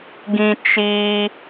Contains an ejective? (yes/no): no